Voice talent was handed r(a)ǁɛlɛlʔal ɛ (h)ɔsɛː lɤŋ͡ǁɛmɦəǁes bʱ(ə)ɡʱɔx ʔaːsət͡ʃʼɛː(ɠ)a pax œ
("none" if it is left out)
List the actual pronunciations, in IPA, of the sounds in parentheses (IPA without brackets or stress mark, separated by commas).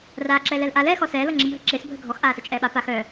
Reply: aː, x, ə, ɓ